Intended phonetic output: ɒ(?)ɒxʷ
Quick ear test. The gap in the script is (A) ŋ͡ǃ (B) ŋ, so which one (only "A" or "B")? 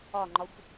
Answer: A